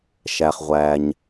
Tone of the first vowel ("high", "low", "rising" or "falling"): low